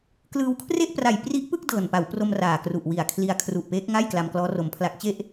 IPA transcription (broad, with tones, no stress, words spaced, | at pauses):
klɯː˧wkʰre˥˩ʔpra˨˩j pri˦˥ʔpɯ˥˩k̚ dɤː˨˩npa˩˦wpro˧m raː˨˩kru˨˩ʔwi˨˩a̯ kʰli˧a̯kʰru˨˩ʔpeː˦˥k̚ŋa˥˩j kla˧mklɔː˦˥ro˧mpʰla˦˥k̚ t͡ɕe˥˩ʔ